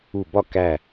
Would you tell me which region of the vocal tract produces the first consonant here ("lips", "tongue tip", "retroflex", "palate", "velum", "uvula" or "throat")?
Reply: lips